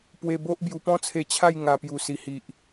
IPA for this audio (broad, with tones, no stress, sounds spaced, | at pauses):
p w e˧ b o˦ ʔ b j u˧ p ɔ̃˦ t͡sʰ e˧ t͡ɕʰ a˥˧ j ŋ a˧ p j u˨˩ s i˨˩ h i˨ ʔ